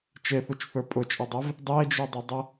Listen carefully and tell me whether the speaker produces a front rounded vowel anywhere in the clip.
no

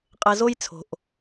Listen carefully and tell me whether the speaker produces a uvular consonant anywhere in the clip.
yes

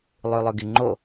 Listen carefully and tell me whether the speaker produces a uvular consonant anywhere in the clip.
no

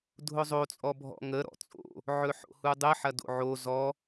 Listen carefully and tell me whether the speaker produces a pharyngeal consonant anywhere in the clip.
yes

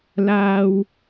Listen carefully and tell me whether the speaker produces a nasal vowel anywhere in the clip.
no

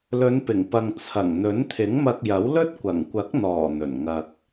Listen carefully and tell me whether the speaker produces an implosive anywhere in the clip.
no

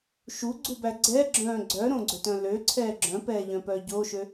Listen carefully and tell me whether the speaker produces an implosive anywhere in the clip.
no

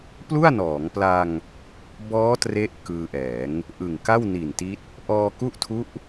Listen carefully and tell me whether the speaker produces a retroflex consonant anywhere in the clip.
no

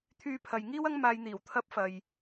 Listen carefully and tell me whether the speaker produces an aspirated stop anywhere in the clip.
yes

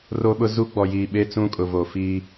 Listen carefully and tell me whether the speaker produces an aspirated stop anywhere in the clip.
no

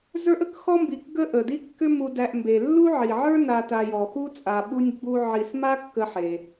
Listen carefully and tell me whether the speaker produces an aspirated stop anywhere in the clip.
no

